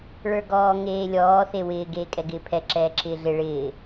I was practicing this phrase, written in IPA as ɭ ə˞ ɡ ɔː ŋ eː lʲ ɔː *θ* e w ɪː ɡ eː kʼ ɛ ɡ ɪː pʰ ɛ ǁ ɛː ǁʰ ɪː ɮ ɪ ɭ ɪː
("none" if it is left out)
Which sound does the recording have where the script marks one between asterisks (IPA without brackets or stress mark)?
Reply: θ